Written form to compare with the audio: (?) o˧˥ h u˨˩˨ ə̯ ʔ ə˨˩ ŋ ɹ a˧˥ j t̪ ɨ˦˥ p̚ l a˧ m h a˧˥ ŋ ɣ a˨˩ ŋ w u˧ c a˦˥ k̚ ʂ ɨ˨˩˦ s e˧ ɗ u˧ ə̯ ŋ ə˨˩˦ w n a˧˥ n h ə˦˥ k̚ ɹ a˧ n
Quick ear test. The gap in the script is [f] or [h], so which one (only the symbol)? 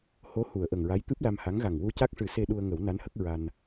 h